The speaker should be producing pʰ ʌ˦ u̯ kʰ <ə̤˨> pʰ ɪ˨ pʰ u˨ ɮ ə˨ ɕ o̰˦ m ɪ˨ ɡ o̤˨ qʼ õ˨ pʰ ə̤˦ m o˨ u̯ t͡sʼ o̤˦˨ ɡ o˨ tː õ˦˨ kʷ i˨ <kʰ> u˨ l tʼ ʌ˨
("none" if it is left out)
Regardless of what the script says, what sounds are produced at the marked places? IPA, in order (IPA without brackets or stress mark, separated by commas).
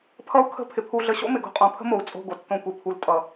ə̤˦˨, pʰ